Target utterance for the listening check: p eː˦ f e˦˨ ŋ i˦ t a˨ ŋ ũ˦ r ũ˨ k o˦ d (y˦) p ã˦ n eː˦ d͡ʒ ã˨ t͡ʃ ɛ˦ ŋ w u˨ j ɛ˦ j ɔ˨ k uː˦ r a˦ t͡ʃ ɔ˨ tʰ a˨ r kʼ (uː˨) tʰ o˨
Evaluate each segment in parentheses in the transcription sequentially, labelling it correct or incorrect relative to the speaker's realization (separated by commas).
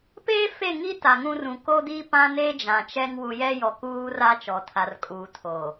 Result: incorrect, correct